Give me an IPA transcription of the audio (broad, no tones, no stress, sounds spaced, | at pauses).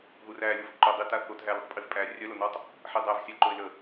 ð u r æ lʲ o v ǃ o dˤ i t a θ o t ɦ æ l i tˤ pʼ i v pʼ æ rʲ œ l o n ɔ tˤ | ħ i dˤ æ v sʲ æ ǃ o ɪ̯ l ə